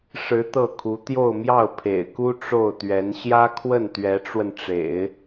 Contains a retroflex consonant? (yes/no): yes